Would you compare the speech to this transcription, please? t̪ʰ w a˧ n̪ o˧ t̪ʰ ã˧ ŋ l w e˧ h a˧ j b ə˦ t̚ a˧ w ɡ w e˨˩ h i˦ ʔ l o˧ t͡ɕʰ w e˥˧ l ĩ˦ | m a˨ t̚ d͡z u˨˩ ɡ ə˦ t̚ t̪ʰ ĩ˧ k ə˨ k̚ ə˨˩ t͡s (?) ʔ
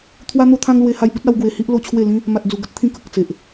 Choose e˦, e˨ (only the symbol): e˨